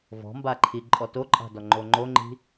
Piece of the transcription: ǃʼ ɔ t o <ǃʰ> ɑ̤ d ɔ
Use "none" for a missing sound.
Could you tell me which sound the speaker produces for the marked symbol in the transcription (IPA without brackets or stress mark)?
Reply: ǃʼ